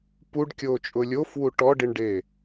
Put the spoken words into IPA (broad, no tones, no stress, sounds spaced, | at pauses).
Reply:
p u ɖ kʲ oː t͡ʃʼ ʊ lʲ o f w u ʈ ɔ ɖ i ɳ ɖ e